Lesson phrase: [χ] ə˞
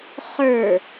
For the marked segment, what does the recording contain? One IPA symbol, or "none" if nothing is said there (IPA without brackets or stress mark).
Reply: χ